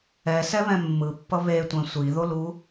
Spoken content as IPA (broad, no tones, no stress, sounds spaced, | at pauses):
ɛ s ɛ β ɛ̃ mː ɯ pː ʌ β e tʷ ɛ̃ sʷ i ð o l u